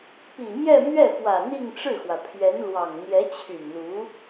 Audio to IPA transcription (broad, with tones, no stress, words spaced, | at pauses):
pi˨˩mjɛ˥˧mɥɛ˥˩fwä˨˩ n̪i˥˧ŋʈ͡ʂɻ̩˥˩xwä˩pʰɥɛ˧˥n lwɑ˨˩ŋ n̪jɛ˧˥t͡ɕʰy˨˩nlu˧˥